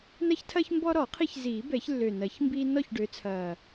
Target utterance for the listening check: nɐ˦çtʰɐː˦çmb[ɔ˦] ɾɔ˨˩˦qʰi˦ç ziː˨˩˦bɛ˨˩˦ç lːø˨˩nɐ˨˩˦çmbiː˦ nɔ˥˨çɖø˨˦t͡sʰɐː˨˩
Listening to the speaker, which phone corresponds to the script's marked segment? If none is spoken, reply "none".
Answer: ɔ˦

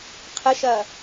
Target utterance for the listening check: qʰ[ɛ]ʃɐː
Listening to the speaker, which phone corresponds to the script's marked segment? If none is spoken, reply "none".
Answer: ə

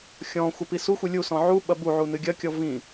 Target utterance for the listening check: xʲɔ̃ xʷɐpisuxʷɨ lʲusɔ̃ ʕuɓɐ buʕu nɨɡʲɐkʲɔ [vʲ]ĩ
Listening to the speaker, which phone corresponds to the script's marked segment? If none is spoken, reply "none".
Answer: v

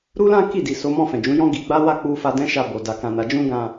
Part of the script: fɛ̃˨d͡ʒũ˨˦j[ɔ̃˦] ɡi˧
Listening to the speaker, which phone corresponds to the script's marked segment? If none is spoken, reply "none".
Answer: ɔ̃˦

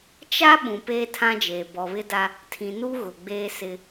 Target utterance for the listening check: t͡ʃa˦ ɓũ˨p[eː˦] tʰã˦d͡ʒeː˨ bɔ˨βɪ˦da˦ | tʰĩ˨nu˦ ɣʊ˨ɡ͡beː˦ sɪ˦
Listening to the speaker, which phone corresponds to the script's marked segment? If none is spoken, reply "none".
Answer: eː˦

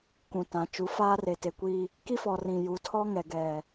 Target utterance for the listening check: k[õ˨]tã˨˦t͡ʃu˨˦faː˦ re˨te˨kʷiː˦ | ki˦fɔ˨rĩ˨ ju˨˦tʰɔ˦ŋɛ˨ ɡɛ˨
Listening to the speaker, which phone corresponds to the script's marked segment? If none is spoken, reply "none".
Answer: ũ˨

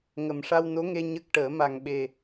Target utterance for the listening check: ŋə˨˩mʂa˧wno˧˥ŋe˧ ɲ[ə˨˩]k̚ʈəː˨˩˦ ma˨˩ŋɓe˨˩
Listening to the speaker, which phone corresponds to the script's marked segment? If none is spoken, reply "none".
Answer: ə˦˥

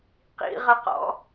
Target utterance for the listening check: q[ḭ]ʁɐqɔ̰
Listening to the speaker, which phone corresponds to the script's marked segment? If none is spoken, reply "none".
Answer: ḭ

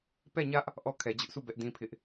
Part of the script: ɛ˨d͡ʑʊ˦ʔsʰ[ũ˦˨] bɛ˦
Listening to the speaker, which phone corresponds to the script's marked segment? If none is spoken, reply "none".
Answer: u˦˨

